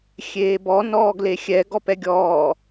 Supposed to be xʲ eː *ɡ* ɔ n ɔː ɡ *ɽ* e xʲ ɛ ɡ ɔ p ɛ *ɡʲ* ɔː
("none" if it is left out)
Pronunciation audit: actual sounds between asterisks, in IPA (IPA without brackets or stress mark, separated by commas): b, l, ɡʲ